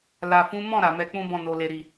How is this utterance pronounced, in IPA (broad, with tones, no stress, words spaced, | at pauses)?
la˨fũ˨˦mɔ̃˦˨ ɾa˨mɛ˧k͡pũ˦bɔ̃˦˨ no˨le˨ɾi˨